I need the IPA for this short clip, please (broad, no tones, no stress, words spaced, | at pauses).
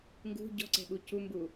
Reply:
ŋɡṳ ɟɔ̤ǀɛ̤ɓu cumbu